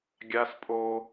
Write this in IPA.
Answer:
ɡʲ a˦ s pʼ o˦

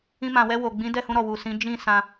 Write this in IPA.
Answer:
ĩ˧ m ã˨ w ɛ˧ w o˨ ɡ͡b ĩ˨˦ d ɛ˦˨ h ũ˧ ɾ ɔ˨ w u˨ s ĩ˨˦ d͡ʒ ĩ˦˨ s ã˧

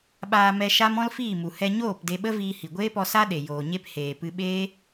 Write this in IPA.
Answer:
ɓ aː˧ m ɛ˧ ʃ a˦ m ɔ̃˦ l f iː˦˨ m u˨ h ɛ˧ ɲ oː˦˨ p d e˧ ɓ ə˦ v iː˧ h i˨ ɡʷ eː˦ p ɔ˧ s a˦ ɗ e˨ j oː˨ ɲ e˧ p h eː˨ p ɨ˧ ɓ eː˦

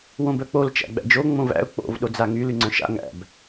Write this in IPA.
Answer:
w õ b œ k͡p o l t͡ʃ æ̰ ɡ͡b æ̰ d͡ʒ o ŋ͡m õ v æ̰ ʊ̯ k͡p o̰ v ɗ o d͡z a ŋ y l y ŋ͡ǀ œ̃ ʃ a̰ ŋ æ̰ b

